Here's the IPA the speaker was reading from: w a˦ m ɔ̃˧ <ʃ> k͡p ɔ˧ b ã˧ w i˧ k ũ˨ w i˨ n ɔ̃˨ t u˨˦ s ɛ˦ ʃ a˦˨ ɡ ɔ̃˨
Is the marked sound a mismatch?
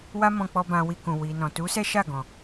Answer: yes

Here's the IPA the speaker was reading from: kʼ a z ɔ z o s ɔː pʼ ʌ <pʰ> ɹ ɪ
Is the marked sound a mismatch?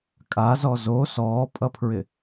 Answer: no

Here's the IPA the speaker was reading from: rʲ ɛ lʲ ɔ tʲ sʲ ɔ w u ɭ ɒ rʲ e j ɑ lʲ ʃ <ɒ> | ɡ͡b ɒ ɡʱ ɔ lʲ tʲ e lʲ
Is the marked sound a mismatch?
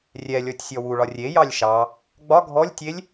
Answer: yes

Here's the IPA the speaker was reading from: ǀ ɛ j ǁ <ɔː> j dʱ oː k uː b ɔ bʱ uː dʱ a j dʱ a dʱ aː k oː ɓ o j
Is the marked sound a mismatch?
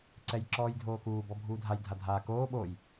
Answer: no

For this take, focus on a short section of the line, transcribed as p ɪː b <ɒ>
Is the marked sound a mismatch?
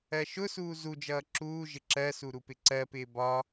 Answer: no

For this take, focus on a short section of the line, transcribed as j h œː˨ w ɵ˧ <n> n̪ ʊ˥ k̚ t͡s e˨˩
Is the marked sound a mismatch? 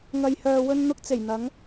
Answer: no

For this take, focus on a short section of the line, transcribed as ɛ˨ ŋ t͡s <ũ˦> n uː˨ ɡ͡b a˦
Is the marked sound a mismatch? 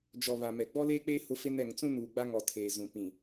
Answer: no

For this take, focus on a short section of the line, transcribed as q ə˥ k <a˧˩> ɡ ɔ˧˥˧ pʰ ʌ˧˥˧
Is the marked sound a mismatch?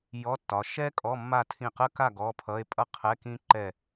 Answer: yes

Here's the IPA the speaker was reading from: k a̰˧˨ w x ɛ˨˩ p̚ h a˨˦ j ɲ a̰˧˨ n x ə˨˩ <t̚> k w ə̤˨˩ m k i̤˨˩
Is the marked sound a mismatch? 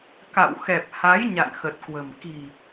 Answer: no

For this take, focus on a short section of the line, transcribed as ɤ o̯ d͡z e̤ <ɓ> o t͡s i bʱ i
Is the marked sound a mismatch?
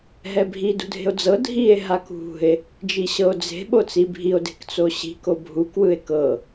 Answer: no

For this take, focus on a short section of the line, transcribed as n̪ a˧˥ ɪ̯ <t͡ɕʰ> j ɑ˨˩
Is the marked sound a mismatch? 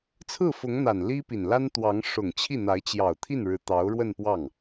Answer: yes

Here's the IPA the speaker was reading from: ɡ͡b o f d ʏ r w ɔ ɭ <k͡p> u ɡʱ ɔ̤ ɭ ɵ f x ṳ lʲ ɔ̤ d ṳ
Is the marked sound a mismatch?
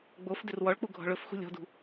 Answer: no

